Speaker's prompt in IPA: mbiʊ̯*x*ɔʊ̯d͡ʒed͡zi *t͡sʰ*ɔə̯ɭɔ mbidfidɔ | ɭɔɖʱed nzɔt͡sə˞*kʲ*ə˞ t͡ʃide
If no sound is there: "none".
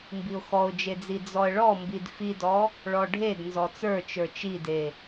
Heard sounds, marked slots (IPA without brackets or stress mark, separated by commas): x, d͡z, t͡ʃ